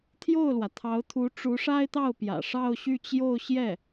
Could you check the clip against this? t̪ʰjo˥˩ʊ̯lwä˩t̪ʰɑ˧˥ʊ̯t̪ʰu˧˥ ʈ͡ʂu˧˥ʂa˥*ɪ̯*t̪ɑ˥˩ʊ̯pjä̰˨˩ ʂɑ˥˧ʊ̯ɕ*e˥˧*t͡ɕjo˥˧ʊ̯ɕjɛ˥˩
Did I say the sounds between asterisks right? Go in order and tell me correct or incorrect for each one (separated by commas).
correct, incorrect